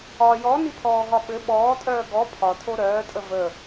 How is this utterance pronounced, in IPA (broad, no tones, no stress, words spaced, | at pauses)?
ɒ jɔnipʰɔːɦɒ ɓɘ ɓɔːtʼœː ɡɔ pʰɒtʰo ɾœːtʼə və